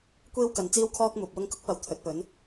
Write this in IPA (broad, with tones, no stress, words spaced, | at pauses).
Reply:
kʷiː˥wkɐ˨˧nt͡siː˥wkʰɔː˥k̚ muː˨p̚wʊ˥ŋ kʊ˥k̚pɐ˨w t̪ʰɵ˨˥t̚pɵ˨˥n